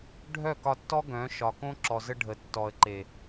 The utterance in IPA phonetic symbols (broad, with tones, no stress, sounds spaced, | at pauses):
ɖʱ œ˦˨ k ɒ˧ tː ɔ˦ ɡ œ̃˨˦ ʃ ɒ˨ k õ˦ ǁ ɔ˨ z ə˧ ɖʱ ə˨ tː ɔ˨ ə̯ ǃ e˨